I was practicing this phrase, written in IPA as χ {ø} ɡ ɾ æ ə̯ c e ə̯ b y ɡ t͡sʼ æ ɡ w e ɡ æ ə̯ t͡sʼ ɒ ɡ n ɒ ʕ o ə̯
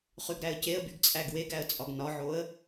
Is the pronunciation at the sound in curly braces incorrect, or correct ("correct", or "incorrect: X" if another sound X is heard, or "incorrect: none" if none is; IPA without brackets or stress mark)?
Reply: incorrect: y